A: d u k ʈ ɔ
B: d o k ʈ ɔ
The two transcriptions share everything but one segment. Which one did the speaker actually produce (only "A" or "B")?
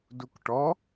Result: A